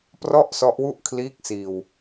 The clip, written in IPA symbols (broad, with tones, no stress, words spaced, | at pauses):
prɔ˥˩ʔsɔ˦˥ʔwu˥˩ʔ kʰliː˦˥k̚ siː˧w